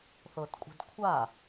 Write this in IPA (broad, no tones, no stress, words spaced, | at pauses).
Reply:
θɤtkʷʼi̤d kʷʰa